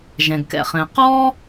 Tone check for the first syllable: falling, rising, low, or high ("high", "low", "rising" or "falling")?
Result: low